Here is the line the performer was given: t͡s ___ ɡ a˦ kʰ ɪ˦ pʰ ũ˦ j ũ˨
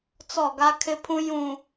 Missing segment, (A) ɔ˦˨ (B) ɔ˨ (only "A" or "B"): A